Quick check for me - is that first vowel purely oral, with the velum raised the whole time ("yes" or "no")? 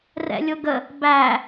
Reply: yes